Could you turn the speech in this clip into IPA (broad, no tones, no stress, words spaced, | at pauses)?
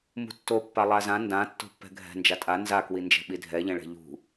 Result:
mṳtːo pːalˠazã ndã tːo̤pːɛ̤ɡʱɛ̤ nd͡ʒatʼa nzakwind͡ʒɛ̤ ɓidʱɛʎɛ̃ɭɛ̤ ʎṳ